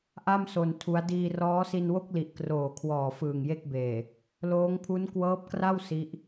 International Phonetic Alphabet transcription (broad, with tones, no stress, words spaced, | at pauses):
ʔa˥˩mso˧n tʰu˦˥a̯ diː˧rɔː˦˥si˧nwo˥˩k̚ li˨˩ʔ kroː˨˩kʰwɔː˨˩ fɯː˨˩ŋje˥˩k̚beː˨˩ | loː˦˥ŋpʰu˦˥n kwɤː˦˥p̚kra˥˩w si˦˥ʔ